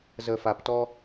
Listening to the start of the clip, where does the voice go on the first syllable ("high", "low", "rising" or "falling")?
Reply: low